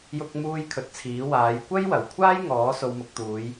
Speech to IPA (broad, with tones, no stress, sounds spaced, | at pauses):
j ʊ˥ k̚ m uː˥ j kʰ ɵ˧ t̚ t͡sʰ iː˨˥ w aː˨˧ j kʷ ɐ˥ j w ɐ˨˩ w kʷʰ aː˥ j ŋ ɔː˨˥ s o˧ w m ʊ˧ k̚ t̪ uː˨˧ j